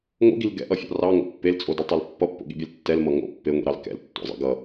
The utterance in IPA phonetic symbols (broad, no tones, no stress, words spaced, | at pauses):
ŋo̰ɡil ɡɛ̰ʔʌfʲɑ̰ rɑŋo̰ pːelt͡sʼodɐtˤil pːʌpːo̰ɠḭbʲɛl tːɛlmʌ ŋo̰ pːeŋʷḭɾɑl kɛ̰ltːo̰zˤḭ ɡʌ